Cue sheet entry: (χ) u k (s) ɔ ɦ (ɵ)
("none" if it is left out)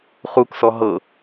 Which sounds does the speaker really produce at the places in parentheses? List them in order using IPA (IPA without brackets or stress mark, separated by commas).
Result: χ, s, ɤ